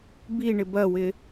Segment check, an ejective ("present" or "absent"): absent